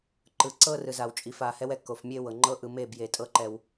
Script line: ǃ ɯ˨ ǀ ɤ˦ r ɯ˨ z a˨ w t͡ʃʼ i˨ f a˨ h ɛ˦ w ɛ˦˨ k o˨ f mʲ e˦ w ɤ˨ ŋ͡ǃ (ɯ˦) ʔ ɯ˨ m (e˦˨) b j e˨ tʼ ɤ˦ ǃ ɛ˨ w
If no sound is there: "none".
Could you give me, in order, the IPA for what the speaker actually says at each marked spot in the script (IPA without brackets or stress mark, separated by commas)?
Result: ɤ˦, e˦˨